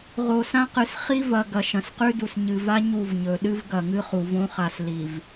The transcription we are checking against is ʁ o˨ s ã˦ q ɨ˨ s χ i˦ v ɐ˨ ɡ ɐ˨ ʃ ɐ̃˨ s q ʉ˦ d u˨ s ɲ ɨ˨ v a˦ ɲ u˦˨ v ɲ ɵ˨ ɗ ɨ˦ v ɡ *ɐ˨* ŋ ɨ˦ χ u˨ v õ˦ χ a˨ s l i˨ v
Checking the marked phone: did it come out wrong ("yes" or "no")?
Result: no